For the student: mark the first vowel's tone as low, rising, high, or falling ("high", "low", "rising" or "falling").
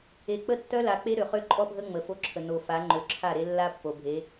low